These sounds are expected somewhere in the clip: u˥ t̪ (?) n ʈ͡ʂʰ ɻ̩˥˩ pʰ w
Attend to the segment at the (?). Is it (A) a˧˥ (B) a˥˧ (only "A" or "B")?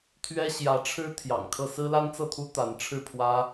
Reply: A